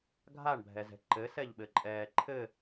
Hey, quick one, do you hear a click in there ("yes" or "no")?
yes